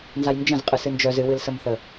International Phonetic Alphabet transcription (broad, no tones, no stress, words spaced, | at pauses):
nzajnd͡ʒə̃z qʼɨsɨnd͡ʒœz ɨwɨlsəmθə